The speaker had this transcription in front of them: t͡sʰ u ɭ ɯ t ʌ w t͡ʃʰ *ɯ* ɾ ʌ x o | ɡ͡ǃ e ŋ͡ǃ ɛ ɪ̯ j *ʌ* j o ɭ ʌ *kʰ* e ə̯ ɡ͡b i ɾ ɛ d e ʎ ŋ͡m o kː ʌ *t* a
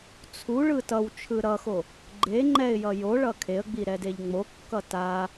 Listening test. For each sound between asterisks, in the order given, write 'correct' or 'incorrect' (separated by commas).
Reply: correct, correct, correct, correct